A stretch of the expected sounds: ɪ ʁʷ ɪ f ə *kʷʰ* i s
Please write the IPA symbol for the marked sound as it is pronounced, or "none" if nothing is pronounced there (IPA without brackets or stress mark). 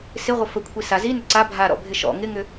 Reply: kʷʰ